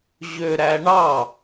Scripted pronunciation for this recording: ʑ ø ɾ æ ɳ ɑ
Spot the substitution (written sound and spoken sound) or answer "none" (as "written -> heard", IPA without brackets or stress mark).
none